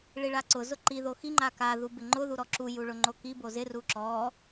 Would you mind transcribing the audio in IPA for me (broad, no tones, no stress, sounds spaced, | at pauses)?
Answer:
ɭ i ɭ a ǀ ʊ z ʊ ǃ i ð o x i ŋ͡ǃ a k a ð u b ɪ ŋ͡ǃ ʊ ð u ɾ ɔ ǁ u j u ɭ ʊ ŋ͡ǃ o k i b o z ɪ r u ǁ ɔ